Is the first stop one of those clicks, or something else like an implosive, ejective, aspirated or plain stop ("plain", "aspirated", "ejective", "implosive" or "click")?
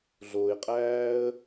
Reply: ejective